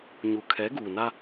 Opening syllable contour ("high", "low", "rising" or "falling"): low